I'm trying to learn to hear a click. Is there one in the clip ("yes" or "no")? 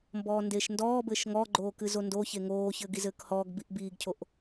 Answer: yes